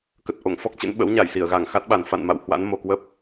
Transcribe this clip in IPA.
k ə˨˩ t̚ ʔ o̰˧˨ ŋ f ɔ˦˥ k̚ t͡ɕ ə̰˧˥ n ɓ ə̰˧˥ w ɲ a˧˩ j s i˧˩ ə̯ ɣ a˧˩ ŋ x a˦˥ t̚ ɓ a˨˩ n f a̰˧˨ n m a̰˧˨ w h w a̰˧˥ n m o˨˩ k w ə˦˥ p̚

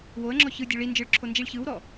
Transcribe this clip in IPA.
w o ə̯ ŋ͡ǁ ɔ ç ɯ dʲ o ɭ i n d͡ʒ ɯ ɭ ǁʰ o n d͡ʒ i ɭ ç ɯ w ɾ ɔ

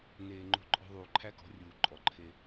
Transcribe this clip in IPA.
n eː˨ ŋ͡ǃ o̤˦ ǃʼ ɔ̤˦ ðˤ uː˨ ǃʰ æ˦ k ɔ̤˨˦ rʲ uː˨ ǃʼ ɔ˨ ǃʰ e˦

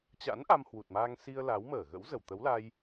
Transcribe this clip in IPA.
t͡ɕ a̰˧˥ n ʔ a˧ m h w u˨˩ t̚ m aː˧ ŋ s i˧ ə̯ l a˨˦ w m əː˧˩ ɣ ə̰˧˥ w z ə˧˩ w t̪ ə˨˦ w l a˧ j

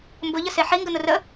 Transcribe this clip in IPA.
m b ʊ ʎ ə s e ħ i ŋ ɡ ə n̪ ʊ r ə

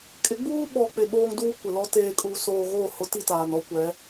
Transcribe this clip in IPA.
kʼ ɪ˨˦ ɡ͡b uː˦ ɓ ɔ˨ k͡p ɪ˨ ɓ oː˦ ŋ d uː˦ kʷ ɪ˨ l ɔ˦ t eː˨ kʼ uː˨ s oː˨ ɣ oː˦˨ h ʊ˨˦ t i˦˨ t aː˨ n ɔ˦ kʷ ɛ˨˦

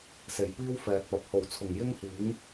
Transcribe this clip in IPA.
s e˨˩ j p iː˥ w f ɛː˨ t̚ p ɐ˨ p̚ h o˨˩ w t͡sʰ ʊ˨˩ ŋ j ɪ˥ ŋ h iː˨˥ ŋ

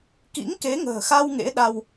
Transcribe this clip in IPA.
k ḭ˧˥ ŋ k e˨˦ ŋ ə̤ː˨˩ x a˧ w ŋ ḛ˧˥ ɗ a˧ w

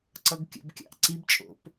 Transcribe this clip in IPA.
ǀ ʌ ɡ kʲ ə̰ b kʲ ɑ̰ ʔ ǀ i b t͡ʃʼ o̰ p

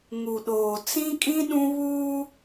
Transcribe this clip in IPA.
ŋ u˨ ɗ oː˨ t͡s ĩ˦ kʼ ĩ˦ ɗ ũ˦ β uː˦

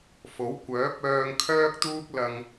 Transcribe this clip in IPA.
f o˨˥ w kʷ œː˨˥ p̚ œː˧ ŋ kʰ œː˥ k̚ t̪ uː˥ k̚ l ɐ˧ ŋ

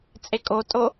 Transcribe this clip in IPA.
t͡sʼ e kʼ o tʼ o

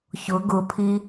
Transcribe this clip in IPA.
ç ʊ ɡ ʊ pʰ i

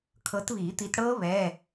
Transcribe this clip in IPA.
kʰ ɤ˨˦ t β iː˨˩˦ t̪ i˨˦ t ɽ ɤː˦˥ β ɛː˧˥˧

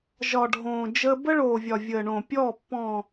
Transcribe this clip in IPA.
ʒ ɒ˨ ɖʱ õː˨ d͡ʒ əː˦ b ə˦ ɭ oː˨ vʲ ɒ˨ vʲ əː˨ ɳ õ˨ pʲ ɔː˦˨ pː ɔ̃˨

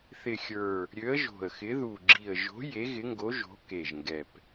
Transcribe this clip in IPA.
θ ɪ˨˩ xʲ ə˞˨˩ | ɾʲ ø˨˦ ə̯ ʒ o̤˨˩ ə̯ x ɪ˨˦ ð u˨˩ ɡ͡ǁ i˨˩ ə̯ ʒ o̤˨˦ j e˨˦ ɣ ɪ˨˦ ŋ ɡ o˨˦ ʒ o̤˨˦ k e˨˩ ʒ ŋ ɡ ɛ˨˩ p

